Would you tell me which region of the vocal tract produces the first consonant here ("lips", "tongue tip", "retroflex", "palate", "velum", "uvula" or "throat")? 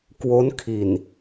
velum